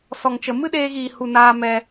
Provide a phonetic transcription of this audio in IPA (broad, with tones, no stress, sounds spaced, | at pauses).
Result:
s ɔ˨ ŋ t͡ʃ ə˨ m ɨ˦ ɗ eː˧ ɣ iː˨ h u˨ n aː˧ m ɛ˧